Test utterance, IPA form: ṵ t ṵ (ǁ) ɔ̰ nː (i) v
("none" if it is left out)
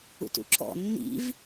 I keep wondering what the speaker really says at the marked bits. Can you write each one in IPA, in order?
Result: ǁ, ḭ

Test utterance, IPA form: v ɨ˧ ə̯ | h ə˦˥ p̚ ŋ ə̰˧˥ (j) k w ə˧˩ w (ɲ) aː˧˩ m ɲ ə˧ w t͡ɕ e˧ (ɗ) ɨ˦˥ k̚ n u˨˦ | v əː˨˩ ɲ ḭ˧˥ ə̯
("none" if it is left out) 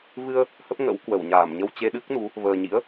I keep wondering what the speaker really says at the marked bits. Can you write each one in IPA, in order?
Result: w, ɲ, ɗ

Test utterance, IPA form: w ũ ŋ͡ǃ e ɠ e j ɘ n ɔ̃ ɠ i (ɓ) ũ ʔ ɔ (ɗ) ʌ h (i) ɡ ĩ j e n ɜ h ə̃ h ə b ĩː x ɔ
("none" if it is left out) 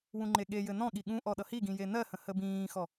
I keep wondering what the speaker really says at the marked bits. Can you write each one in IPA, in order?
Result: ɠ, ɗ, i

